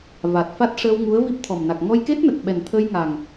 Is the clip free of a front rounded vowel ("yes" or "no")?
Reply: yes